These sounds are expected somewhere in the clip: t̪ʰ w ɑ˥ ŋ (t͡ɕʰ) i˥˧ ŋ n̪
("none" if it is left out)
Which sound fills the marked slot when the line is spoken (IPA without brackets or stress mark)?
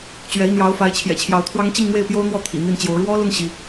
t͡ɕ